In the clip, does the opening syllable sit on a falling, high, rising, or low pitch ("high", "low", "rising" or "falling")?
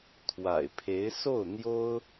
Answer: low